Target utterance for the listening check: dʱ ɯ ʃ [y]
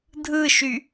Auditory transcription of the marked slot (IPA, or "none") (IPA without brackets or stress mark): y